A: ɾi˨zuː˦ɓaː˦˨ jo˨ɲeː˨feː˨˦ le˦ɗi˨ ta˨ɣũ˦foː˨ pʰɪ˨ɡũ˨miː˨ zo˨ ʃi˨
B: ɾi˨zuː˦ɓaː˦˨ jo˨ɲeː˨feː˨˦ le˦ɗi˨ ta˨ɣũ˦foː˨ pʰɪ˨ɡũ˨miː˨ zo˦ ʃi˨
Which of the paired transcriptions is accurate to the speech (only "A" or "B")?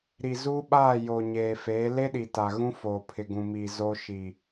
B